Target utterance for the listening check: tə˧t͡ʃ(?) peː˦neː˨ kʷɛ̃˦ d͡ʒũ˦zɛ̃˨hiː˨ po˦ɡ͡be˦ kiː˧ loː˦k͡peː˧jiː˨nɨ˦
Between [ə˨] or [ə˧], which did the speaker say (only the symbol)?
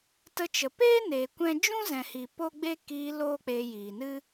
ə˨